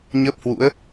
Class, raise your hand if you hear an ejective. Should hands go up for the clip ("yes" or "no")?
no